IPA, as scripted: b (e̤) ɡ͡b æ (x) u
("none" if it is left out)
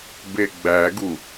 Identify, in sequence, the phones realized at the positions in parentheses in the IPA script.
e, ɡ

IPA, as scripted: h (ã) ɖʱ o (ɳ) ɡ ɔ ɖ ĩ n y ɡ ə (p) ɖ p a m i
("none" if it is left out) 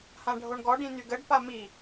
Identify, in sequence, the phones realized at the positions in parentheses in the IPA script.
ã, ɳ, none

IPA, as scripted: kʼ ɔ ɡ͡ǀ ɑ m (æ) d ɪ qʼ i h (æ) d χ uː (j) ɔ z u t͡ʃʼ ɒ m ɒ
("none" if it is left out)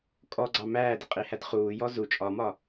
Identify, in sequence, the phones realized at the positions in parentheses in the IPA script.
æː, æ, j

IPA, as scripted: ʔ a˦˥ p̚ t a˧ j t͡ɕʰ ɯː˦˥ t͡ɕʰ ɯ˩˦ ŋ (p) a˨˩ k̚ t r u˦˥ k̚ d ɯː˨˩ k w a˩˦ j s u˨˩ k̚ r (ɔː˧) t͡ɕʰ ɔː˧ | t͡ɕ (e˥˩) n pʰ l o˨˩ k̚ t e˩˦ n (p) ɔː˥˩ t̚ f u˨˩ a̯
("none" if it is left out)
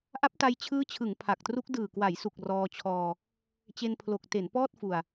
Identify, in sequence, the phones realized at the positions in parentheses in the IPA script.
pʰ, ɔː˧, e˧, p

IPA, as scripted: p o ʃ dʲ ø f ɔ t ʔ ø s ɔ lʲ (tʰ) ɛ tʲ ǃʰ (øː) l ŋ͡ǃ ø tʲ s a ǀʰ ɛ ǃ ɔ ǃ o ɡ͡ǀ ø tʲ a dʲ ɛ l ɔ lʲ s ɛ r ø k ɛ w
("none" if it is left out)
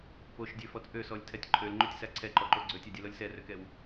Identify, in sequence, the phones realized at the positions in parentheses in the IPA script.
tʰ, ø

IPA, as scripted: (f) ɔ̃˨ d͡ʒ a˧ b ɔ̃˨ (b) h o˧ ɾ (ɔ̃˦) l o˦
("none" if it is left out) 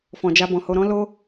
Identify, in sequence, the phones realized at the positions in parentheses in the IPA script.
f, none, ɔ̃˦

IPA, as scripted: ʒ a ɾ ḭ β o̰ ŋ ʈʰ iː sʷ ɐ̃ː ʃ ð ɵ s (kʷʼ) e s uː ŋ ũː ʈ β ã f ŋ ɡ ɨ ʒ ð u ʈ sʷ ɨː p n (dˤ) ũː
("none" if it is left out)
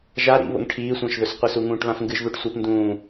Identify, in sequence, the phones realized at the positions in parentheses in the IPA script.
qʷ, d

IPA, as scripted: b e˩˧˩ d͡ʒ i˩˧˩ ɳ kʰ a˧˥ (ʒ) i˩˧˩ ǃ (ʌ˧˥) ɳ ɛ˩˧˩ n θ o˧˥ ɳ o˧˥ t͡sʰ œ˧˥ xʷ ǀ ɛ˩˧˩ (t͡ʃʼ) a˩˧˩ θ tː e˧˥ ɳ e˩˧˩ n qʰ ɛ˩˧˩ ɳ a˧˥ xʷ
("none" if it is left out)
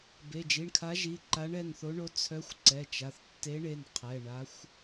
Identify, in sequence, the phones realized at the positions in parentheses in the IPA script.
ʒ, a˧˥, t͡ʃ

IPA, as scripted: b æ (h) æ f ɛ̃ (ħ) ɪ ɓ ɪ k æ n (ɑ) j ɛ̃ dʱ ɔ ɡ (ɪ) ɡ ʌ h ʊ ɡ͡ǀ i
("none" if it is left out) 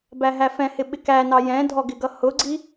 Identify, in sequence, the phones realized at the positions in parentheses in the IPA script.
ɦ, h, ɑ, ɪ

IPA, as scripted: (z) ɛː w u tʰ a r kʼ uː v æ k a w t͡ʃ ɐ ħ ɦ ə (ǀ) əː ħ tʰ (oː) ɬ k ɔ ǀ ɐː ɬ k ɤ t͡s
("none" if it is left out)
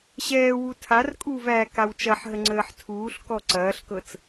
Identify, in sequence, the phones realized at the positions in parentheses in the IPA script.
ɕ, ŋ͡ǀ, uː

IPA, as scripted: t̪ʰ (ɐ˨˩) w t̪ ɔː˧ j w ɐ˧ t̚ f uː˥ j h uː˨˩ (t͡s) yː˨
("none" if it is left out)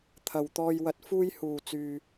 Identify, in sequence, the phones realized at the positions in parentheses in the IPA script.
ɐ˨˩, t͡s

